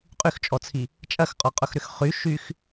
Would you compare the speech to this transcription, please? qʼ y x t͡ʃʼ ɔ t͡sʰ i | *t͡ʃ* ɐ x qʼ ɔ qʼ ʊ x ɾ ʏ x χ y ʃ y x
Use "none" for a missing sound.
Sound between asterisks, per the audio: t͡ʃʼ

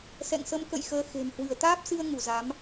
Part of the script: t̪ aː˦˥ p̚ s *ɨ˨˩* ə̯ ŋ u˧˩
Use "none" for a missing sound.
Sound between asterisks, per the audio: ɨ˧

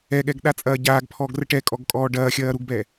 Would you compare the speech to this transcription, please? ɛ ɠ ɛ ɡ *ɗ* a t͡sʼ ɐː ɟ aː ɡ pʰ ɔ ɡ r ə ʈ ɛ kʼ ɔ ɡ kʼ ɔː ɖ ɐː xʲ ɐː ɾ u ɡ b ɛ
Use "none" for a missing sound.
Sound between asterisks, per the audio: ɗ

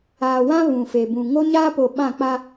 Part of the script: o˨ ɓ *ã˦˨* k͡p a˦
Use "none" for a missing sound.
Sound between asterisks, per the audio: ã˦˨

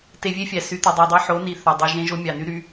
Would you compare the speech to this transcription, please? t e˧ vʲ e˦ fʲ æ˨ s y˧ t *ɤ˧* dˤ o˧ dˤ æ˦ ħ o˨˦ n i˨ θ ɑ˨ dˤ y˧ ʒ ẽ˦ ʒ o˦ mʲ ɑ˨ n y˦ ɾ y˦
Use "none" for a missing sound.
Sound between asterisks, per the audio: o˧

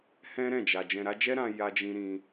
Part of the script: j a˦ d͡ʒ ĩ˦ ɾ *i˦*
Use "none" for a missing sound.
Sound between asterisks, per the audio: ĩ˦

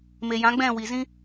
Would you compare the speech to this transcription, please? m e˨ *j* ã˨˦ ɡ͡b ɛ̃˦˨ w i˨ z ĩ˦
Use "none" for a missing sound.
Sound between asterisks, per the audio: j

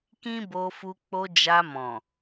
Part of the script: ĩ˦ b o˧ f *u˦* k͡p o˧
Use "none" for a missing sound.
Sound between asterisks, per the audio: u˧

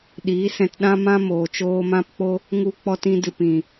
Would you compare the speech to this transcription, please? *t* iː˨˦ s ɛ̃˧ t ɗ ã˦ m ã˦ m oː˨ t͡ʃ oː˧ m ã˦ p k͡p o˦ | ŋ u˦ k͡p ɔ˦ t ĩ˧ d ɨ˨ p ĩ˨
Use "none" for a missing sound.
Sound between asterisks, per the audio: ɗ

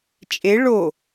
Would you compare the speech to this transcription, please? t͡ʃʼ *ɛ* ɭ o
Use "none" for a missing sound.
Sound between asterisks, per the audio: e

